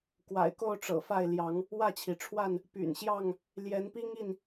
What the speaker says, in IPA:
k w a̰˨˩ ɪ̯ k o˥˨ ʊ̯ ʈ͡ʂ ɤ̰˨˩ f a˥˨ ɪ̯ l j ɑ˨˦ ŋ | w ä˥˨ t͡ɕʰ i˩ ʈ͡ʂʰ w a˥˨ n | p y̰˨˩ n ɕ j ɑ˥˨ ŋ | l j ɛ˨˦ n p i˦ ŋ i˥˨ n

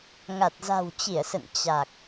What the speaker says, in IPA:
ŋ a˨˩ t̚ z a̤˨˩ w t͡ɕ i˧˩ ə̯ s ə̰˧˨ n t͡ɕ a˨˩ k̚

